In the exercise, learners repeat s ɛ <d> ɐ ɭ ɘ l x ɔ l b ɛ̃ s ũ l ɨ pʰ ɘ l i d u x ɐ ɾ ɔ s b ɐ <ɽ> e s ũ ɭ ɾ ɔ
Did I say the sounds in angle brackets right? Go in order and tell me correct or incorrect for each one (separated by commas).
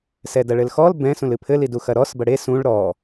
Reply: correct, correct